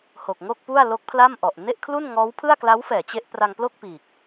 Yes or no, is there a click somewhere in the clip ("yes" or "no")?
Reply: no